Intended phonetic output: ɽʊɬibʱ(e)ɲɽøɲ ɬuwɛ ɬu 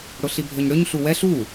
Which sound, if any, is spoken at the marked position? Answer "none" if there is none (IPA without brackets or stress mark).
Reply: ø